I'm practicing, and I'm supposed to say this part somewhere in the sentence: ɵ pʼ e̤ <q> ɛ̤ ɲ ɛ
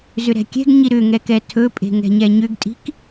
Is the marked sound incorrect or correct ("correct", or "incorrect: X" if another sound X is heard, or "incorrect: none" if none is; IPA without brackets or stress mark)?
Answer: incorrect: ŋ